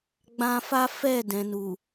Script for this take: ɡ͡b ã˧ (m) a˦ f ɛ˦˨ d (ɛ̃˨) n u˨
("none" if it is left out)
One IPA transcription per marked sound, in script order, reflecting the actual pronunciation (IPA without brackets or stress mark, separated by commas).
f, ɛ̃˨